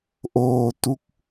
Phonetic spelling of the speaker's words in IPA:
ʔ oː˧ t u˦˥ k̚

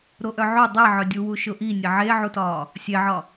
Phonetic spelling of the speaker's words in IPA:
ɾ o ʔ œ ʕ o dˤ e ʕ œ dʲ u w u ʃ ʊ ʔ i nʲ e ʕ e ʕ u t ɒ | sʲ e ʕ ɒ

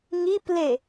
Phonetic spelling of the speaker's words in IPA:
ŋ i p l e

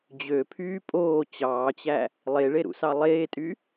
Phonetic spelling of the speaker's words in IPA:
d͡ʑ ø pʰ yː pʼ oː t͡ɕ ɑː t͡ɕ æ | lˠ e ɭ e ɾ ṵ s ɑ lˠ eː tʼ y

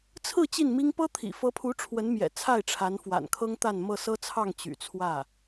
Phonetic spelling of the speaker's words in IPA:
t͡sʰ ɹ̩˥˧ t͡ɕ i˥˩ n m i˥ ŋ p ɤ˥ t̪ʰ ḭ˨˩ f ɤ˧˥ pʰ u˧˥ ʈ͡ʂʰ w ə˧˥ n m j ɛ̰˨˩ t͡sʰ a˥˩ ɪ̯ ʈ͡ʂʰ a˧˥ n f w a̰˨˩ n kʰ ɤ˥ ŋ t̪ a˥˧ n m ɤ˥˩ s ɤ˥ t͡sʰ ɑ˥˩ ŋ t͡ɕ y̰˨˩ t͡sʰ w ä˥˩

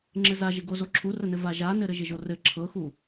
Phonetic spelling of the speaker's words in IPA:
ŋ͡ǁ ɘ z a ʒ ɪ ɡ o z o ǁʰ u r ə n ɘ v a ʒ a n ɘ ɾ ɘ ʒ ɪ ʒ o r ɘ ǁʰ ɤ x u

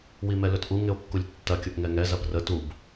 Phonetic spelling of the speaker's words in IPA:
w i m ɛ l ɵ t ʔ u ŋ ɪ o̯ kː u lʲ tː ɐ kʲ o ʔ ŋ ɛ ŋ ɛ z ɐ b r ə t u b

